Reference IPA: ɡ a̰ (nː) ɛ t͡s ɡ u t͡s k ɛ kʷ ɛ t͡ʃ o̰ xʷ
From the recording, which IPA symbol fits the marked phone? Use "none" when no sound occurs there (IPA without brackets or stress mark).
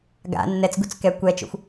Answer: nː